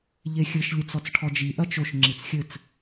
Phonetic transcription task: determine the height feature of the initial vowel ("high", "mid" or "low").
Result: mid